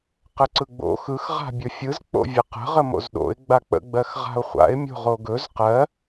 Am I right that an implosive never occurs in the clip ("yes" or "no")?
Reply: no